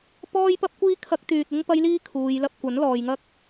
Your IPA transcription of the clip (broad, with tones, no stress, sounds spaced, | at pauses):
p ɔː˥ j p ɐ˥ p̚ kʷ iː˥ kʰ ɐ˥ k̚ t̪ yː˧ t̚ ɪ˥ ŋ p ɐ˥ j l iː˥ kʰ uː˨˧ j l ɐ˧ p̚ kʷ ɐ˨˥ n l ɔː˨ j ŋ ɐ˥ k̚